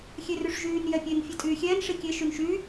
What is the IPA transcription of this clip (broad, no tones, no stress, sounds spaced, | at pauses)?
xʲ e r y ʂ ʒ yː n j ɛ pʲ e n fʲ e tʼ yː xʲ ɛː n ʂ i kʲ e ʃ y n ʃ y